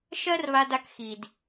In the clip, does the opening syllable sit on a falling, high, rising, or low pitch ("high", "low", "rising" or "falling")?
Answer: high